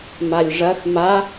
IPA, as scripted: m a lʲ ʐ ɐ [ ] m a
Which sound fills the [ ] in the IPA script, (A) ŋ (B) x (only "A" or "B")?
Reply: B